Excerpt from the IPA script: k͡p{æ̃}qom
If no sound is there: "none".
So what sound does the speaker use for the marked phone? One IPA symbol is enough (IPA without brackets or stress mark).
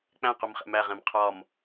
æ̃